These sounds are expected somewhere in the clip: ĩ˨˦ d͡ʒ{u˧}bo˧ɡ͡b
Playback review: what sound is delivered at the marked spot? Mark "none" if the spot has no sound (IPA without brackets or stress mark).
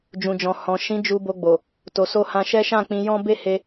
u˧